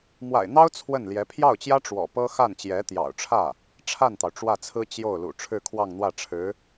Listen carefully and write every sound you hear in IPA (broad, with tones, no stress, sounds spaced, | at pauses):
m w a̰˨˩ ɪ̯ n̪ ɑ˥ ʊ̯ t͡sʰ w ə˥˩ n l j ɛ˧˥ pʰ j ɑ˥˩ ʊ̯ t͡ɕ j ä˥ ʈ͡ʂ w ɔ̰˨˩ p ɤ˥ x a˥˩ n t͡ɕ j ɛ˧˥ t̪ j ɑ̰˨˩ ʊ̯ ʈ͡ʂʰ ä˥˩ | ʈ͡ʂʰ a˥˩ n t̪ ɑ˩ ʊ̯ ʈ͡ʂ w ä˥˩ t͡sʰ ɹ̩˥ t͡ɕ j o˥˩ ʊ̯ l ṵ˨˩ ʈ͡ʂʰ ɻ̩˥˧ kʰ w ɑ˥˧ ŋ n̪ w ä˥˩ ʈ͡ʂʰ ɻ̩˧˥